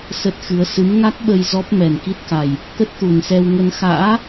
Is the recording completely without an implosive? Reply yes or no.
no